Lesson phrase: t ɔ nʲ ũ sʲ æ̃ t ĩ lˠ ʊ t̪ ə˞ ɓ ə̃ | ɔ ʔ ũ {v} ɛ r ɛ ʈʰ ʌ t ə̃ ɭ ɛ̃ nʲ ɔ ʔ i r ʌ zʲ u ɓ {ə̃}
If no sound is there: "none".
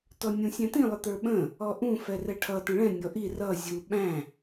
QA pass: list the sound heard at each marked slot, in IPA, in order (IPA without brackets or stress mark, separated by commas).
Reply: f, æ̃